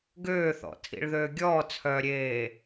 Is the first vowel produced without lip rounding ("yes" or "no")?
no